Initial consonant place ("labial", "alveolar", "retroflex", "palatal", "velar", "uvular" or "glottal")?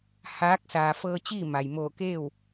glottal